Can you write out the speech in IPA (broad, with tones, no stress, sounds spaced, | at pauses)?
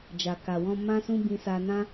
d͡ʒ a˨ k a˨ w ɔ̃˧ m ã˦ s ũ˦ b ĩ˧ s a˧ n ã˦